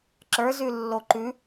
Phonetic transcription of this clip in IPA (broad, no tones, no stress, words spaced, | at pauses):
ǁə˞z ʉlːoǃʉ